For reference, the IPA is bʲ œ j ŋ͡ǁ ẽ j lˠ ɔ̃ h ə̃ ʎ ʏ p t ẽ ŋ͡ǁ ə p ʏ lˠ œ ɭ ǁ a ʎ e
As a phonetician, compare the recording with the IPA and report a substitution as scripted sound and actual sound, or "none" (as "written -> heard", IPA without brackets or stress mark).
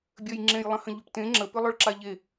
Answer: ɔ̃ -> ə̃